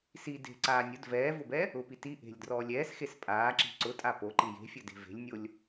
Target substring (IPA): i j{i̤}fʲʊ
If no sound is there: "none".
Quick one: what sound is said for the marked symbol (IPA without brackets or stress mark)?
e̤